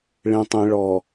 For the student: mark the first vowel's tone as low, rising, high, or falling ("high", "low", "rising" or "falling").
low